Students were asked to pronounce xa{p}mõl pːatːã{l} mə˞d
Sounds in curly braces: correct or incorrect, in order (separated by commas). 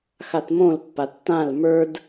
incorrect, correct